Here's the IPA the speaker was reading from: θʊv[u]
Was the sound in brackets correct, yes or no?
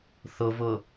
no